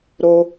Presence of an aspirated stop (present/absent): absent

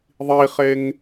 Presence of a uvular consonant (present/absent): present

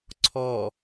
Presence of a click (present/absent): present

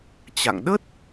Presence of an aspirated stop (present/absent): absent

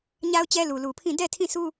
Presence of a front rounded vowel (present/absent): absent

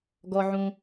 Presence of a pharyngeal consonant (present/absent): present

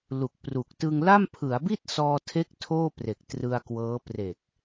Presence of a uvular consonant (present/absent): absent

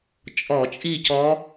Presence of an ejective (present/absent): present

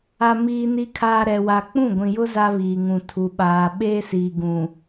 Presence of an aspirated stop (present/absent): present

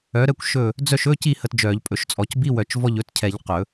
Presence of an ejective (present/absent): present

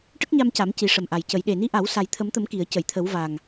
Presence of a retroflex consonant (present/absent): present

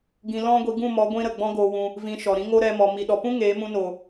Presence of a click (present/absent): absent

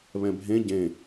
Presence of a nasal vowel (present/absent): present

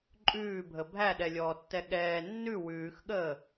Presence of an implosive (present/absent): present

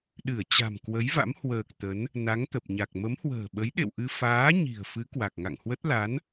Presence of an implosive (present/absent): present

